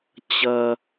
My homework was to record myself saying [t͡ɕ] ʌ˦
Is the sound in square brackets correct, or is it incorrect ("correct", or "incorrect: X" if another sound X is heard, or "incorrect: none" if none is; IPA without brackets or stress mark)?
correct